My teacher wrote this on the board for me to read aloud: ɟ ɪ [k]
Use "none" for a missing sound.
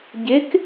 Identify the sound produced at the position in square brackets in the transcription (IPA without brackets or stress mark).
k